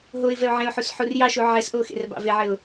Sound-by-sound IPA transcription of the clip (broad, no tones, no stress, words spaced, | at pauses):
ɦoɪ̯vɛʊ̯ ʕẽʊ̯ħus ħurjɑʃu ʕɛsʔo xḛrbɑ̰veʕɘʊ̯